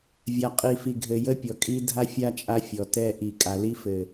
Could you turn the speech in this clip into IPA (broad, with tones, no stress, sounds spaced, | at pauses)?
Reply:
vʲ a˨ qʼ i˨ f i˨ ɡʱ ɘ˨ j ə˦ pʲ ɔ˨ kʼ i˦ dʱ a˦ fʲ a˦ t͡ʃʼ a˦ fʲ ɔ˨ t ɛ˦ ʔ i˨ kʼ a˨ l i˦ f ɘ˨